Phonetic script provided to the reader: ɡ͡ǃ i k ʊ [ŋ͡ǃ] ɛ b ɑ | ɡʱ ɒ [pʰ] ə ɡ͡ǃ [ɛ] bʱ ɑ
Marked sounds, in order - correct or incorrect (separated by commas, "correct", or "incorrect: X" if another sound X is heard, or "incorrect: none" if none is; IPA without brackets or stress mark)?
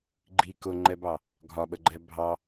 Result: correct, incorrect: ɓ, correct